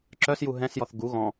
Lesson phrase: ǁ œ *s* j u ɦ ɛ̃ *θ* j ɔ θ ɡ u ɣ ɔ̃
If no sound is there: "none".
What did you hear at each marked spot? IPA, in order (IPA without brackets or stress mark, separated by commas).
s, s